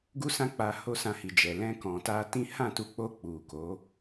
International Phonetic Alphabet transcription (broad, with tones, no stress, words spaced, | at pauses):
ɡu˦sã˦k͡pa˧ ho˦sã˧hi˨d͡ʒɛ˨ lɛ̃˧kɔ̃˨ta˧tĩ˦ hã˦˨tu˧k͡po˧ k͡pu˨ko˨˦